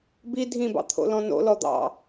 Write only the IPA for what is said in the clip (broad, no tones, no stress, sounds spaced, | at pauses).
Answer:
b i dʱ ĩ b ɑ̰ t̪ʰ o̰ l ɔ̃ n o̰ l ɔ d̪ ɑ̰